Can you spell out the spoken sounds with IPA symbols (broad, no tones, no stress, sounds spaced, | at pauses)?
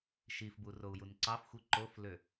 ʃ i f b u r o u̯ j u n ǀ ɑ f xʷ i ǃ o f l ø